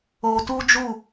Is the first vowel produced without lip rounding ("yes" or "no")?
no